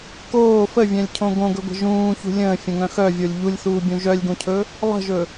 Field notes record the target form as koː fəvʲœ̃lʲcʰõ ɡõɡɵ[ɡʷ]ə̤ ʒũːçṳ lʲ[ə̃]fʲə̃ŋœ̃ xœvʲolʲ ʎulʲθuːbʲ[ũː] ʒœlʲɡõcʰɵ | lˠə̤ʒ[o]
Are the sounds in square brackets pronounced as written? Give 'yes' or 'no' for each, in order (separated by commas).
yes, no, no, no